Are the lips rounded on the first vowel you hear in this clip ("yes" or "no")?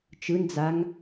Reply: no